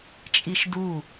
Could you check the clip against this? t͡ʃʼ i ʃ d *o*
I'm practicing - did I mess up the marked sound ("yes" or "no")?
yes